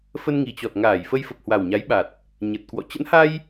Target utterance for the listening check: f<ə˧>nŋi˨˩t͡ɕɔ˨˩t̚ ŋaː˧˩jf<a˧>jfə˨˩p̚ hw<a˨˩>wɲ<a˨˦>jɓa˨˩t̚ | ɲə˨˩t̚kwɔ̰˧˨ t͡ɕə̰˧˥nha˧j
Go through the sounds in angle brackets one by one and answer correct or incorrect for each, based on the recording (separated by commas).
correct, incorrect, correct, correct